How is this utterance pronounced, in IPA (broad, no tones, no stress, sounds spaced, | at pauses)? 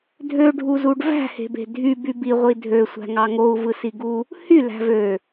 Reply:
dʱ ø ɖʱ u z u ɖ v æ̤ h e̤ b e̤ dʱ y b y b i ʁʷ i dʱ ø sʷ æ̤ ŋ ɑ ŋ o u̯ v ɯ s i ɡ u | h y l æ̤ v ø